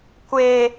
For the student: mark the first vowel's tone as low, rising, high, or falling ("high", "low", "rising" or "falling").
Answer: high